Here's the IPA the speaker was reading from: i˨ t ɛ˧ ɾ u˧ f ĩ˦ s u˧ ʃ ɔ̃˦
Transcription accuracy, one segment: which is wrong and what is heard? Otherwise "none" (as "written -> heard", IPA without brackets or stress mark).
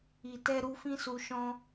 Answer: none